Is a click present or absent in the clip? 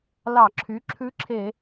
present